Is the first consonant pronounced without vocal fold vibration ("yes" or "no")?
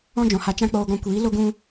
no